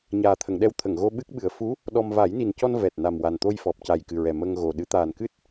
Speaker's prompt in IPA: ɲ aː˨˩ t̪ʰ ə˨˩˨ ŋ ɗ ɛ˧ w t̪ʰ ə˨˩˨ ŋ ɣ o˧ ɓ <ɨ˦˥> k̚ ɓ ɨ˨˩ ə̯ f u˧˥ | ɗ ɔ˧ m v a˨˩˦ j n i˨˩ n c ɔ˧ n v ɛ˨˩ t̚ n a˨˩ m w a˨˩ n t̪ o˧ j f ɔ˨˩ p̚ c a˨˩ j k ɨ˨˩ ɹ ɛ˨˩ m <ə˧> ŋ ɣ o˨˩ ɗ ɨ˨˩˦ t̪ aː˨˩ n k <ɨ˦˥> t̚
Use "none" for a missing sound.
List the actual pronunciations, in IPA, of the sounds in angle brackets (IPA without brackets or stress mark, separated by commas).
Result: ɨ˦˥, ə˧, ɨ˦˥